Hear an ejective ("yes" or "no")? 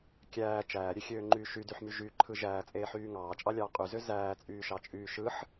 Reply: yes